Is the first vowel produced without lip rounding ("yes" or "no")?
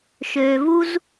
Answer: no